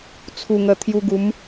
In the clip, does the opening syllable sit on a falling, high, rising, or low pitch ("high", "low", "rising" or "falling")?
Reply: low